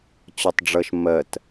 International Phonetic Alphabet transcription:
t͡ɕ ɒ tˤ ɖ͡ʐ ʌ ʃ m ɜ t

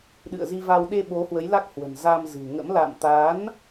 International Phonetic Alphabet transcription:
ɗ ɨ̰˧˨ ə̯ z i˧ v a˧ w ɗ e˧ ɓ o˨˦ h w ə˨˦ j l a˦˥ k̚ h w ə̤˨˩ n z a˧ m z ɨ̤˨˩ ŋ ə̰˧˥ m l a̰˧˨ m t̪ a˨˦ n

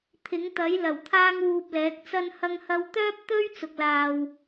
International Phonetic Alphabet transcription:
t̪ʰ ɪ˨˥ ŋ t̪ ɐ˨˥ j l ɐ˨˩ w t̪ʰ aː˥ ŋ w uː˧ p̚ l ɛː˨˥ k̚ t͡s ɐ˧ n h ɐ˧ ŋ h ɐ˧ w t̪ œː˥ p̚ t̪ ɵ˥ ɥ t͡s ʊ˨ k̚ l aː˨ w

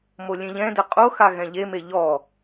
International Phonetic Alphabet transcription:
m o lʲ ẽ ʎ ɛ̃ d ɛ qʼ o x a ɣ ɛ̃ ʎ e m e ʎ ɔ

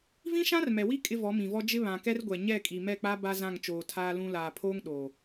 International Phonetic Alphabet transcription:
v ĩ˦ ʃ ã˦ r m ɛ˨ w i˦ kʼ ɪ˦ v ɔ˨˦ m ĩ˨ v ɔ˦ d͡ʒ ɪ˦ β ã˨ k ɛ˦ r ɡʷ ɛ˨ ɲ ɛ˦˨ kʼ i˨ m ɛ˦˨ k͡p a˦ b a˦ z ã˦˨ ŋ t͡ʃ oː˨ tʰ aː˦ l ũ˦ l aː˨ pʰ oː˦ ŋ ɗ oː˨

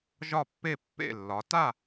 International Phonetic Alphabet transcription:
ʒ ɒ˥˨ pː e˥˨ pː ḛ˥˨ lː ɒ˨˦ t a˥˨

